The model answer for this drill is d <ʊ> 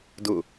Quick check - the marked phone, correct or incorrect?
correct